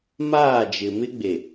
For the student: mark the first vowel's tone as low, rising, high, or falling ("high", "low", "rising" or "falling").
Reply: falling